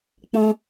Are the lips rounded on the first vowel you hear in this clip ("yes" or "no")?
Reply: yes